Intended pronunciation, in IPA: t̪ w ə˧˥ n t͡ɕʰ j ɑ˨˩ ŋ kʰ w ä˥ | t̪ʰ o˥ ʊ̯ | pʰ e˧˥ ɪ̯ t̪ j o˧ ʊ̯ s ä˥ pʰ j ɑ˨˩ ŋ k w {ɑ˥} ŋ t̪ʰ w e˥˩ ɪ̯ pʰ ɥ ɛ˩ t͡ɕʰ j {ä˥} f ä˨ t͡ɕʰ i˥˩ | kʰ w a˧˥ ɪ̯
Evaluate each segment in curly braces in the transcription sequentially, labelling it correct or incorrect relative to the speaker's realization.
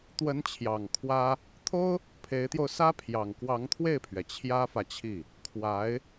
incorrect: ɑ˧˥, correct

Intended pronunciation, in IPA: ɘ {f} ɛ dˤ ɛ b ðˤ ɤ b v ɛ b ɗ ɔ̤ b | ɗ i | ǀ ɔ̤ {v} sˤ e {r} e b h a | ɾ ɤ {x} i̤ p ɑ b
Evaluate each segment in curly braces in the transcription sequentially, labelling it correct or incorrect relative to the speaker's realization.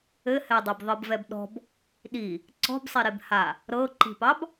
incorrect: h, incorrect: b, incorrect: ɾ, incorrect: ǃ

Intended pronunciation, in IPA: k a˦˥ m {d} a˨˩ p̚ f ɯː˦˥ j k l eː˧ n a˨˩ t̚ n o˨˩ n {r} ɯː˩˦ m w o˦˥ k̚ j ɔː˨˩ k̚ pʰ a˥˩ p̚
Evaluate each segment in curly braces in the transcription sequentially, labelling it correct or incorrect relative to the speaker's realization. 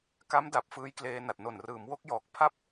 correct, correct

